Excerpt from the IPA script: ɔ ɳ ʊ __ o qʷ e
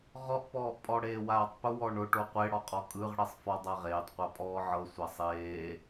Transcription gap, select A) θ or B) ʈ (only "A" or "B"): B